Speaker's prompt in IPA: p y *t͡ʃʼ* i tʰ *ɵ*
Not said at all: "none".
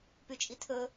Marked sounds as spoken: t͡ʃʼ, ɵ

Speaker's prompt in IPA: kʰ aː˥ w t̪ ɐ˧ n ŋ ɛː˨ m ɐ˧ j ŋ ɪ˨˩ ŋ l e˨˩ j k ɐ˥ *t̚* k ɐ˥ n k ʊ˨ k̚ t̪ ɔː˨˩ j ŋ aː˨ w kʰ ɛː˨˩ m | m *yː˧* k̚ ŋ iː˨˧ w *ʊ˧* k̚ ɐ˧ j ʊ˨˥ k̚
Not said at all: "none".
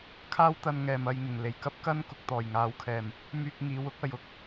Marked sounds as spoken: p̚, yː˧, ʊ˥

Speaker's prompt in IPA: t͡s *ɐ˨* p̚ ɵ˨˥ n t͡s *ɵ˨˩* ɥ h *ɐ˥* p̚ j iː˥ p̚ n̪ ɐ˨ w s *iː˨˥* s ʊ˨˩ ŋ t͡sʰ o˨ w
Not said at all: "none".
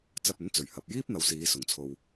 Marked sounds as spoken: ɐ˧, ɵ˨˩, ɐ˨, iː˨˧

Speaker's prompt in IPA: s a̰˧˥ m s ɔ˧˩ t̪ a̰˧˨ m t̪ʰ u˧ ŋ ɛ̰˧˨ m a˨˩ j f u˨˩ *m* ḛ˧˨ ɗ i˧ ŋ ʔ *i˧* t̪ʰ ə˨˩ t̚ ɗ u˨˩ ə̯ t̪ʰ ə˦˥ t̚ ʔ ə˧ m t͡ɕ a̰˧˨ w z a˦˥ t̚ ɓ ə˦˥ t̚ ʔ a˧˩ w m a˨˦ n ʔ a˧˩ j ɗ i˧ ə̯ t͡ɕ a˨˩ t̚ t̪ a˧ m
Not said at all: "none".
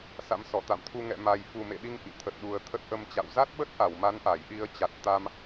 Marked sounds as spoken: m, ḭ˧˨

